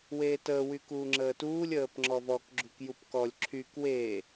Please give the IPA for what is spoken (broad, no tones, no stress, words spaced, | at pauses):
weːtəː wykuːŋ͡ǁəːtuːlʲ əːpŋ͡ǁɔvɔk ɡ͡ǁukjupkɔlʲ ǁʰyk weː